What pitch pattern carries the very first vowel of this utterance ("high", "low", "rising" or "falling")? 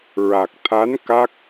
low